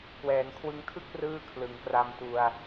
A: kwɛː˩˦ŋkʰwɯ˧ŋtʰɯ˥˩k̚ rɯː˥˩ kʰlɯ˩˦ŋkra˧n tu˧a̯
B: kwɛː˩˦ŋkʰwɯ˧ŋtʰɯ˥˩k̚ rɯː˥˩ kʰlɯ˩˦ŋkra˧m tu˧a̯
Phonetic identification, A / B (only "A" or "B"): B